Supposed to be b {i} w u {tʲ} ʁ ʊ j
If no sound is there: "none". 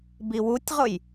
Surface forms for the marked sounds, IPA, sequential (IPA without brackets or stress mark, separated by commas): i, tʲ